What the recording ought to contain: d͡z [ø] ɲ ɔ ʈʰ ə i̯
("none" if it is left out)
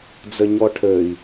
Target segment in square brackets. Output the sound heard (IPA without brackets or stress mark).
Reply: ə